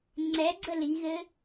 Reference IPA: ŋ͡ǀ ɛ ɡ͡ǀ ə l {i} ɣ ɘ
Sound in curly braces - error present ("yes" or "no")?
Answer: no